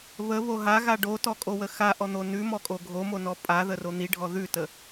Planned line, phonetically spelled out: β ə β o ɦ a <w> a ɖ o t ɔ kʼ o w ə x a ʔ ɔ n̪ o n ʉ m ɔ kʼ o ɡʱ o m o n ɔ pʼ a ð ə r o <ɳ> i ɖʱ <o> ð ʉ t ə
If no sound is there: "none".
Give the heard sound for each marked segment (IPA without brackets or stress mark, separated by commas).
ɣ, n̪, ɔ